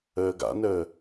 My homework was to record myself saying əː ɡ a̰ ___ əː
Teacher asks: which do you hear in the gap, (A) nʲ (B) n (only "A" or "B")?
B